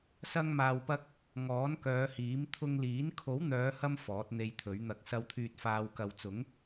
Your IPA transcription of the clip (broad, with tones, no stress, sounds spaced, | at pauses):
s ɐ˧ ŋ m aː˨ w p ɐ˧ k̚ | ŋ ɔː˨˥ n k œː˨˧ h iː˨˥ m t̪ʰ ʊ˧ ŋ l iː˨˥ n kʰ o˨˥ w n̪ œː˨˧ h ɐ˧ m f ɔː˨˥ t̚ n̪ e˧ j t̪ʰ ɵ˨˥ ɥ n̪ ɐ˧ k̚ s ɐ˨ w t̪ʰ yː˨ t̚ f aː˧ w k ɐ˨ w t͡s ʊ˨˥ ŋ